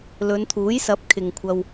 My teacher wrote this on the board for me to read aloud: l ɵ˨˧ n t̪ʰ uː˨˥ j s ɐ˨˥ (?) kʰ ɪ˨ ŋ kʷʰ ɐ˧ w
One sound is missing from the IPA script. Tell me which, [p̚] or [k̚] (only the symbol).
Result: p̚